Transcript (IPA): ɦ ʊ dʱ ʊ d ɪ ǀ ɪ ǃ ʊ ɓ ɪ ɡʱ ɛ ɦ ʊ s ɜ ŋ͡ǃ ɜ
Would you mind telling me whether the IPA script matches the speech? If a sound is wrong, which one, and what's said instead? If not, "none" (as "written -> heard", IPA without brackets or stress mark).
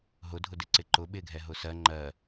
none